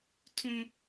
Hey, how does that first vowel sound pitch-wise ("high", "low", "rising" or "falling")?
high